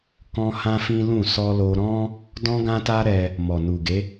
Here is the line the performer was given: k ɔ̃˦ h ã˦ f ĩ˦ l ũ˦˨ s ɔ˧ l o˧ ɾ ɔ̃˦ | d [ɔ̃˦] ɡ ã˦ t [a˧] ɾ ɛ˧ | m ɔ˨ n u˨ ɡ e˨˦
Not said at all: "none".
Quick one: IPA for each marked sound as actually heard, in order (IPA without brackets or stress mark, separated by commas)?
ɔ̃˦, a˦